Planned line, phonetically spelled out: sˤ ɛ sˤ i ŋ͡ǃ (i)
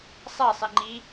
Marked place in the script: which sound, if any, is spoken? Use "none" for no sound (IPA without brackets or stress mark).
i